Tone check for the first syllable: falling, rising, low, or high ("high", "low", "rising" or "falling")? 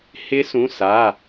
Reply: rising